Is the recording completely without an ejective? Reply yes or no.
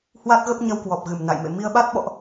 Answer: yes